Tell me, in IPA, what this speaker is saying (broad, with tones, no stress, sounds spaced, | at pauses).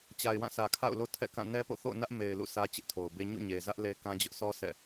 t͡ɕ a˨ ɪ̯ w ã˦˨ s ä˨ kʰ a̰˦˨ ʊ̯ l o˦ tʰ ɛ̰˦˨ k ã˦˨ n ɛ˦ p o̰˦˨ θ o̰˦˨ ʊ̯ n ä˦ ʔ m e˨ ɪ̯ l ṵ˦˨ s ä˦ t͡ɕ ɪ˦ ʔ tʰ o˨ ʊ̯ b e˦ ɲ ṵ˦˨ ɲ e˨ z ä˦ ʔ l e˦ k ã˦ d͡ʑ ʊ˦ ʔ sʰ ɔ˦ s ɛ̰˦˨